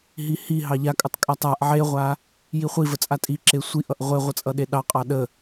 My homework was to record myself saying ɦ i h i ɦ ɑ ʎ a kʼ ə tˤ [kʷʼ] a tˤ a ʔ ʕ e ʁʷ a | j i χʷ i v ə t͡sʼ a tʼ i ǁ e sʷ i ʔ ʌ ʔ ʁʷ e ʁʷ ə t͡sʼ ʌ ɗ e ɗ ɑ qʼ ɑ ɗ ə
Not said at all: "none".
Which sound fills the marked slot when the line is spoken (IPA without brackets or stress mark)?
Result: kʼ